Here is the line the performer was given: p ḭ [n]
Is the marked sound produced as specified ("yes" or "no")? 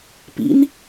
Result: yes